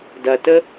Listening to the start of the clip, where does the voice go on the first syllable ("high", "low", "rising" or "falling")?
high